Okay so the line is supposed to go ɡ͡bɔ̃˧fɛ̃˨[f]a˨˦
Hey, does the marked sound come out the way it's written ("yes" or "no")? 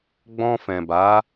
no